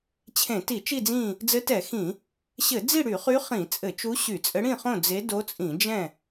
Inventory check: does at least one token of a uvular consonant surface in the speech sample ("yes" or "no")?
yes